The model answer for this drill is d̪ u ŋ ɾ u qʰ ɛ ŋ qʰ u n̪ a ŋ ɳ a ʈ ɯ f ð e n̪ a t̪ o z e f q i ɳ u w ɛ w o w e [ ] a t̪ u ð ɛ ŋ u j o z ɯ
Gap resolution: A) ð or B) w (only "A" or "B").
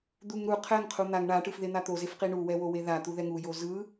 A